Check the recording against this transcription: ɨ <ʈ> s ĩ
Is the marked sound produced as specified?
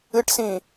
yes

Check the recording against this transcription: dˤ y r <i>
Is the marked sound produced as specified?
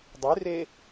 no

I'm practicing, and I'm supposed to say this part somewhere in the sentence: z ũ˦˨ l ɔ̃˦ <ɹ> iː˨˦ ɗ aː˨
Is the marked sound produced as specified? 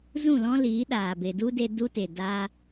no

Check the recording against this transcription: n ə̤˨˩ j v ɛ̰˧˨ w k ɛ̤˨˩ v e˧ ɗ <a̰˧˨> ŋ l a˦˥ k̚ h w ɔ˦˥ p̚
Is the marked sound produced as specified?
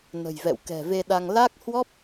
no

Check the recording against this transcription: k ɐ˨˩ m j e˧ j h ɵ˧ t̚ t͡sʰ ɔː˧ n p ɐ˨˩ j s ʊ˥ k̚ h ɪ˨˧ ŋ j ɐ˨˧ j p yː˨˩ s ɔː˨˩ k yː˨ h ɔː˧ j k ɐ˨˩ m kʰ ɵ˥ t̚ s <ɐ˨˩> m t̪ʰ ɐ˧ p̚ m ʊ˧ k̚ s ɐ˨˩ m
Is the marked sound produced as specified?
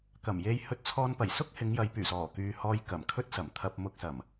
yes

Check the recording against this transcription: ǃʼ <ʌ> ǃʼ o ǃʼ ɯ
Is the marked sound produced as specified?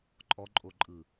no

